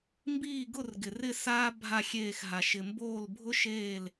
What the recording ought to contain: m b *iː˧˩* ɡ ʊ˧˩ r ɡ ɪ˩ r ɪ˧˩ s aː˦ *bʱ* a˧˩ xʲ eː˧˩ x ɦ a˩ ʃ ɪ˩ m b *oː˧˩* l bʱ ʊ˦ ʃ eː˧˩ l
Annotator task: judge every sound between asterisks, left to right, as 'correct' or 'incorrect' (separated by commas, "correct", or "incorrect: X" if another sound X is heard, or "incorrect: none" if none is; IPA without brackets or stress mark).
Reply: correct, correct, correct